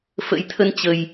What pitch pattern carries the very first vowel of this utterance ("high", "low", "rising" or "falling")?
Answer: rising